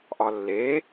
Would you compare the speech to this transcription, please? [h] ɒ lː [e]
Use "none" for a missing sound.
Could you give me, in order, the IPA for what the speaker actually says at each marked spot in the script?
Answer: ʔ, e

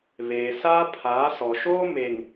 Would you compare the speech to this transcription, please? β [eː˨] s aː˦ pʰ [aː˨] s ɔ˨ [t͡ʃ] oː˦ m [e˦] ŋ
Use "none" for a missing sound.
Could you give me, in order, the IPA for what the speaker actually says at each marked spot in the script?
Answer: eː˨, aː˨˦, ʃ, e˨

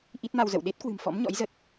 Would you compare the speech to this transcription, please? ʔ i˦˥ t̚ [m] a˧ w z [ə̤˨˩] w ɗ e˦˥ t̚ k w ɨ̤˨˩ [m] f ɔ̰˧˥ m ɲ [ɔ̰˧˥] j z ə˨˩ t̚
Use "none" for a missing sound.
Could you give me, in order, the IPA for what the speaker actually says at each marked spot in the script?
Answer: m, ə̰˧˨, m, ɔ̰˧˥

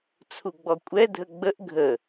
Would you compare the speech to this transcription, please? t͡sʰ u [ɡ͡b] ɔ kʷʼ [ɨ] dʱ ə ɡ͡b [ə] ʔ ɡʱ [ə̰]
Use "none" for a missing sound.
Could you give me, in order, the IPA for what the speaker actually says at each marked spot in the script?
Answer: ɡ͡b, ɛ, ə, ə

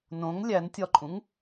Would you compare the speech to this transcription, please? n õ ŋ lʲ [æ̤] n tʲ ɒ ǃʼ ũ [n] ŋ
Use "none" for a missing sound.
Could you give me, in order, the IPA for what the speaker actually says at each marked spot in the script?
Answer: æ, none

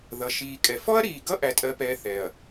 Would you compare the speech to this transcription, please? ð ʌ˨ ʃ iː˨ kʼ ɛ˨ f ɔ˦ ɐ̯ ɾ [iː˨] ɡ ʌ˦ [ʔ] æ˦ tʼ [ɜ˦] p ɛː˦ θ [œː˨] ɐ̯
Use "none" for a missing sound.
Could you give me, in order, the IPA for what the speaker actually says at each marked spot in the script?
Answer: iː˨, ʔ, ɜ˦, ɛː˨

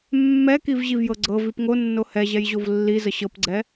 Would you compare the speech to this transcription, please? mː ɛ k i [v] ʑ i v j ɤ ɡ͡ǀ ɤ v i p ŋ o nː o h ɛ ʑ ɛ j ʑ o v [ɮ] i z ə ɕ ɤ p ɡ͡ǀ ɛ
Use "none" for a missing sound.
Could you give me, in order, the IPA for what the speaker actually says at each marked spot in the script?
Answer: v, lː

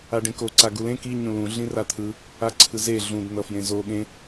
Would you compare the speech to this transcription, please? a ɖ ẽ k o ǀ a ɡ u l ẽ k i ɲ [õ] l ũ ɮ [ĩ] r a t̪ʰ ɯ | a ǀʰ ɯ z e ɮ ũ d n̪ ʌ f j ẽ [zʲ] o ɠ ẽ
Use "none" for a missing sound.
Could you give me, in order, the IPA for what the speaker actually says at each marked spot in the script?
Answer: ũ, ĩ, z

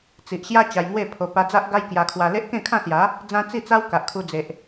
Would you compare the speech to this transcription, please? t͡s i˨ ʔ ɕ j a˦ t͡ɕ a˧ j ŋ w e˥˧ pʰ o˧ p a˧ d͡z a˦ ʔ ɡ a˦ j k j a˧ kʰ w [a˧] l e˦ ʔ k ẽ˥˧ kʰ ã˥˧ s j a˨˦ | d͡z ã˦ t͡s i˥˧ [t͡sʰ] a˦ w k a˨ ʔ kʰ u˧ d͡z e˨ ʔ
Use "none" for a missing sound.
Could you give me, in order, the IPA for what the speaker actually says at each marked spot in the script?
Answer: a˧, t͡s

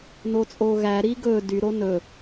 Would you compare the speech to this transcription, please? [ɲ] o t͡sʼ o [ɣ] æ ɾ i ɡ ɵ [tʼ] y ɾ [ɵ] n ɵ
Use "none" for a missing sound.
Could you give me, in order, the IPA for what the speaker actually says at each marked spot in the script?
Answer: n, ɣ, d, o

